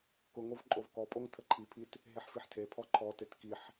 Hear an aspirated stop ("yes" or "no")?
yes